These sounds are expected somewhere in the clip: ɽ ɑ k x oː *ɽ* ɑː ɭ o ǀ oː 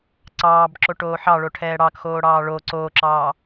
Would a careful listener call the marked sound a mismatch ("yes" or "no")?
no